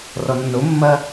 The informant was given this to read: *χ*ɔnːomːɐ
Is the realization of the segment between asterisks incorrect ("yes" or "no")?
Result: yes